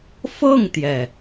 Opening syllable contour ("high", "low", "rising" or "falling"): falling